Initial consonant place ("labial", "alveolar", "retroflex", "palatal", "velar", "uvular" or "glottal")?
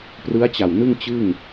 labial